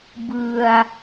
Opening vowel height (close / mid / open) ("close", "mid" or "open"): close